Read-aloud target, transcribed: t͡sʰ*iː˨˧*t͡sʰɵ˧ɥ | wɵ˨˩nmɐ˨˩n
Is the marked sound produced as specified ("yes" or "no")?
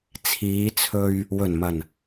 yes